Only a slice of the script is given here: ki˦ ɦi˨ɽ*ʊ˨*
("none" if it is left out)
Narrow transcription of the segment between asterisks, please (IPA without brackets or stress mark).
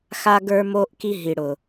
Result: ʊ˨